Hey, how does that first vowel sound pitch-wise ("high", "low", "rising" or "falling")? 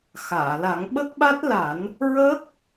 low